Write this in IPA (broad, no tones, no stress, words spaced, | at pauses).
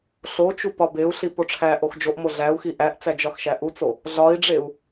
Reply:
ɬot͡ʃu pɒbeu̯ɬi poʈ͡ʂʰæʔox d͡ʒoʔmo ɮæu̯xi ʔæʔt͡sæ d͡ʒɒxʃæʔut͡so | ɮɒi̯ɖ͡ʐeu̯